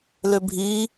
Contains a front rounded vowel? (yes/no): yes